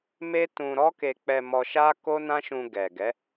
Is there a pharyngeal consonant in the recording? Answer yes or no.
no